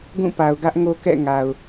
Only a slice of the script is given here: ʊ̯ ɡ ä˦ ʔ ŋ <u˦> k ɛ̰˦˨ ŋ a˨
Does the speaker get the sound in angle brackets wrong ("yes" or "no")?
yes